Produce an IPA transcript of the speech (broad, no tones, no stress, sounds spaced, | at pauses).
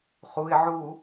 χ u ɪ̯ ʕ u